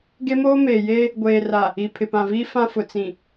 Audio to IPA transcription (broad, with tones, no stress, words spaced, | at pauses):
ɡe˦moː˦meː˨jeː˦ | ɡʷeː˨ra˨ | i˨ pʰɪ˨pã˨viː˦ fã˦fʊ˨ t͡sĩ˨